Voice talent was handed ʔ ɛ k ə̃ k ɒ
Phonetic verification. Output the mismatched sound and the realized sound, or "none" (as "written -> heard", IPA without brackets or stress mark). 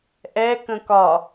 none